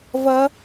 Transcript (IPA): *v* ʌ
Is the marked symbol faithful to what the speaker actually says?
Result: yes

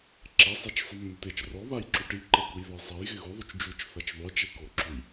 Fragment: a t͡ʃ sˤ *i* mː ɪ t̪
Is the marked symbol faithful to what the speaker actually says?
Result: no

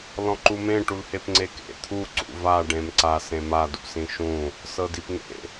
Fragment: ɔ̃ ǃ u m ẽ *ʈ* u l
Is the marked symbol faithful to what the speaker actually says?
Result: yes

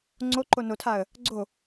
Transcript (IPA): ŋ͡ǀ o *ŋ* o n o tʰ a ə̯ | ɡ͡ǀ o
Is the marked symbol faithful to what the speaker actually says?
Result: no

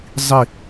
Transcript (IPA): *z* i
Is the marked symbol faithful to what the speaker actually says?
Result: no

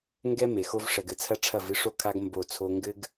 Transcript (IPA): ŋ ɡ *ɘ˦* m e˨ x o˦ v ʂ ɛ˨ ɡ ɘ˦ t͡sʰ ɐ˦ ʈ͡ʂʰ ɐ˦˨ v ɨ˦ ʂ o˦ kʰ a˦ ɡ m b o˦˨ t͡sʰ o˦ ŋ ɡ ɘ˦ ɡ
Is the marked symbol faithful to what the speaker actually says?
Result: no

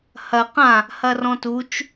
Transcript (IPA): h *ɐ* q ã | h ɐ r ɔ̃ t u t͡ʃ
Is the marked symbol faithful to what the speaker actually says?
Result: yes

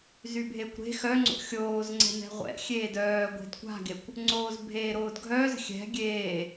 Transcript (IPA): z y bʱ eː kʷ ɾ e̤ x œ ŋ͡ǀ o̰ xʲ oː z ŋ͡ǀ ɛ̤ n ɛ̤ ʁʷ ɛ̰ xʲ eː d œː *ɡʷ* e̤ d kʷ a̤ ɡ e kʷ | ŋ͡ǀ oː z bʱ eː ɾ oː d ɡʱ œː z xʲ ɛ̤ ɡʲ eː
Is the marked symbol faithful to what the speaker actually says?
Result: yes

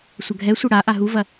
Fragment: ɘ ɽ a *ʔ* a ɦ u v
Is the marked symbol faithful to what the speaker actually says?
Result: yes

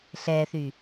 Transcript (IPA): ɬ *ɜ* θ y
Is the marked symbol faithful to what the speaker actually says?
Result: no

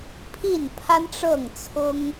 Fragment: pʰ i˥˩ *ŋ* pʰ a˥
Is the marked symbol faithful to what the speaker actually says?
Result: no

